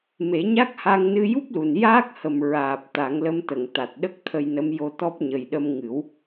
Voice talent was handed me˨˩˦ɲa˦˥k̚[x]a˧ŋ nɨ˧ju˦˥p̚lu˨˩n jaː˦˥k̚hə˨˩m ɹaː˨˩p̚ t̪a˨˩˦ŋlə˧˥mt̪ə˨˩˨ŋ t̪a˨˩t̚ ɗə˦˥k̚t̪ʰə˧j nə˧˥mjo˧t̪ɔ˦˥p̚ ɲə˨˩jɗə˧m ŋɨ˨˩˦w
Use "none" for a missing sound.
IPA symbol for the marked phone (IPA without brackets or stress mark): h